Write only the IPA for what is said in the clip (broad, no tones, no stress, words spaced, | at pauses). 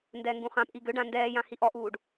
ndɛːŋɡũχãpʔi ɡøɖã ndɛːjã hiʔɔʔuːɖ